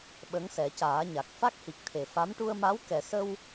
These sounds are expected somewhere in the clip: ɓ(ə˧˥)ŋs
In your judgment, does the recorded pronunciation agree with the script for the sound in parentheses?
yes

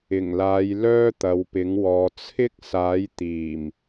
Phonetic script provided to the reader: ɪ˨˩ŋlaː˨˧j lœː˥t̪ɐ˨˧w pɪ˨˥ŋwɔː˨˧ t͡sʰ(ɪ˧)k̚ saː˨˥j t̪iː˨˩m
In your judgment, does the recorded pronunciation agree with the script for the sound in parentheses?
no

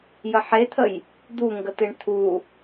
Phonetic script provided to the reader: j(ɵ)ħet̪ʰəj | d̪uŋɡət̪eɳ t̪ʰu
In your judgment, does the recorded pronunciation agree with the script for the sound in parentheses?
no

